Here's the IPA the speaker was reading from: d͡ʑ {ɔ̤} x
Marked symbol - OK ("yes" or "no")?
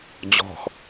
yes